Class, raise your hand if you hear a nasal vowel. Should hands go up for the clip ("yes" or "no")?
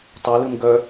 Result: no